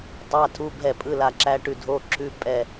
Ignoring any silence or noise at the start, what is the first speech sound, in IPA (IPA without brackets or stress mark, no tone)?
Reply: tˤ